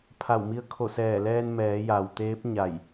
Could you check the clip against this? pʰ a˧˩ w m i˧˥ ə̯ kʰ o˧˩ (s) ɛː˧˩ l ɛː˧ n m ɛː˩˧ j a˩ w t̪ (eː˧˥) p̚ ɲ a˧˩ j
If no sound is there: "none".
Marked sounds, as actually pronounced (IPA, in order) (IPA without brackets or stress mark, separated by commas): s, eː˧˥